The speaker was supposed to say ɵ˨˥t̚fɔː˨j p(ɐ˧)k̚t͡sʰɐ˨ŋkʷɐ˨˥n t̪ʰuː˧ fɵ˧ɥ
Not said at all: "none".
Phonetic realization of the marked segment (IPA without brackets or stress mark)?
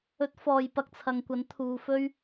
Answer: ɐ˧